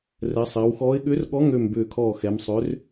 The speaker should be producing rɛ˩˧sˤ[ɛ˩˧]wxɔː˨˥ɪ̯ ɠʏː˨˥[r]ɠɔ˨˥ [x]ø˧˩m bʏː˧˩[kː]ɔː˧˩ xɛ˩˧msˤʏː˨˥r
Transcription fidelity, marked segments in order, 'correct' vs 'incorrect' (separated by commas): incorrect, correct, incorrect, incorrect